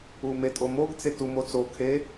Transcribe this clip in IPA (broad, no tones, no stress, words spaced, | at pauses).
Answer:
umetʼomoɡ t͡setu mot͡sokʰe